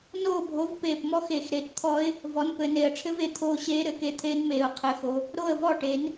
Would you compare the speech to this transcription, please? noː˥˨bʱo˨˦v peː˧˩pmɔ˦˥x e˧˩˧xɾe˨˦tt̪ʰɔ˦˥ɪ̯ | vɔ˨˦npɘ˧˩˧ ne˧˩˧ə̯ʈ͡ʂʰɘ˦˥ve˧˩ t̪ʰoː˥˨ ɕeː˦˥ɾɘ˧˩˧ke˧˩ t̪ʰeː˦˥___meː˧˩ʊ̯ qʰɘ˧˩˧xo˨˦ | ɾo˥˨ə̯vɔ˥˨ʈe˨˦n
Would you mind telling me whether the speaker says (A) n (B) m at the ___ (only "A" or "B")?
A